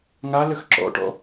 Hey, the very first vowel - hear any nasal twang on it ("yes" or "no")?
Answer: no